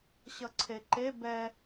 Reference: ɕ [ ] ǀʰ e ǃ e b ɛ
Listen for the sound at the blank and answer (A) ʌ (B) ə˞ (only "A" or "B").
A